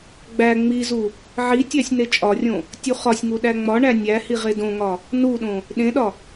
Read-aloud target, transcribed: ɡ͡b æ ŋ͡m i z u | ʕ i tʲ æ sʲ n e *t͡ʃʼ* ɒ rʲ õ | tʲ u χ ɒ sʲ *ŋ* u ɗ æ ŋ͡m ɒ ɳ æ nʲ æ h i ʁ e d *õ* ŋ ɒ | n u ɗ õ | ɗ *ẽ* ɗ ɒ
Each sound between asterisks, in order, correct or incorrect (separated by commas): correct, correct, correct, correct